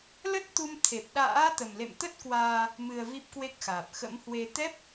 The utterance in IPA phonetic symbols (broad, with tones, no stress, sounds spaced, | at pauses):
l ə˦˥ t̚ t̪ u˧ m t̪ʰ e˨˩ p̚ ɗ a̰ː˧˥ t̪ ə˨˩ m l ḛ˧˨ m t̪ ə˦˥ t̚ k w aː˧ | m ɨ˧ ə̯ v i˦˥ p̚ k w e˦˥ k̚ x aː˨˩ p̚ x ə̰˧˥ m h w e˧ t̪ ɛ˦˥ p̚